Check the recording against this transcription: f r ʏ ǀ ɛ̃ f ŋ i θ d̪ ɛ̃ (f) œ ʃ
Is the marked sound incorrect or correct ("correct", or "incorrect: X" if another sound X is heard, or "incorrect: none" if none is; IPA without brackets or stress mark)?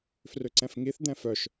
correct